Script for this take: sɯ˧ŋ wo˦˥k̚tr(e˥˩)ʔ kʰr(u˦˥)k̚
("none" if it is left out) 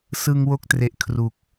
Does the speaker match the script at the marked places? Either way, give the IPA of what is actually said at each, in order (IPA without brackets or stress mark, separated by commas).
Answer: e˨˩, u˨˩